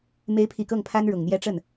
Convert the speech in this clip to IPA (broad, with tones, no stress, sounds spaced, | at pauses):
m e˧˥ ɪ̯ pʰ i˨˩ k ɤ˥˩ ŋ pʰ a˥ n ɻ ʊ˨˩ ŋ n̪ j ɛ˥ ʈ͡ʂ ə˥˩ n